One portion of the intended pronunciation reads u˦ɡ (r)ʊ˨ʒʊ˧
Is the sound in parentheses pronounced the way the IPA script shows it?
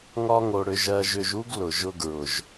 no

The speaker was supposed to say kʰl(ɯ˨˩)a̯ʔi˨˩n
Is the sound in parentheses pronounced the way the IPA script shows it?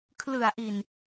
yes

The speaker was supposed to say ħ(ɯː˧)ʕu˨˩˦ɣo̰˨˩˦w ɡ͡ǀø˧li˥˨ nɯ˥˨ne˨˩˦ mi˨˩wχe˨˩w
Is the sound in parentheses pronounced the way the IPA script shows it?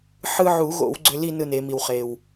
no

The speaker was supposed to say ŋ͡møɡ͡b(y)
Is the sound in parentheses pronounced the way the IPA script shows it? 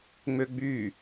yes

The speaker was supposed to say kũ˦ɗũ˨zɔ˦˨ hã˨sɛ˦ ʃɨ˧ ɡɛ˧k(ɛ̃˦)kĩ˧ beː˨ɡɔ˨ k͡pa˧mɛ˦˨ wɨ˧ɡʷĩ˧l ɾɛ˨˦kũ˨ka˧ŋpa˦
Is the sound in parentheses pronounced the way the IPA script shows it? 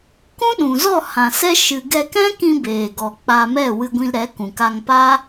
yes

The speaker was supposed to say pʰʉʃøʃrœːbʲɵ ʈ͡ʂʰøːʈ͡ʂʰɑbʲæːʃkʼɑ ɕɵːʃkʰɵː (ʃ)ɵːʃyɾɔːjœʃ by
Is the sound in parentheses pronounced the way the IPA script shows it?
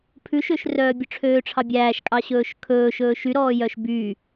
yes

